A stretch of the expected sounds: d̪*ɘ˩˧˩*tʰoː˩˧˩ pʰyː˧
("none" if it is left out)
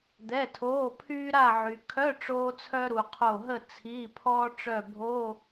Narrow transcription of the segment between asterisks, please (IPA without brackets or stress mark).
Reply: ɛ˩˧˩